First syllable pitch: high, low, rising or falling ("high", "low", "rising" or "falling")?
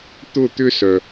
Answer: falling